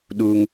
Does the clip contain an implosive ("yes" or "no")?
yes